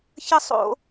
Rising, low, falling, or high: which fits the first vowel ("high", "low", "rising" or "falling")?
high